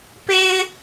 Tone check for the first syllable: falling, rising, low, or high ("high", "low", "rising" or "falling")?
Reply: high